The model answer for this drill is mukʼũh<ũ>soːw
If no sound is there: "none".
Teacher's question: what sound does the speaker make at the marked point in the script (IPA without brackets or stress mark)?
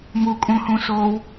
ũ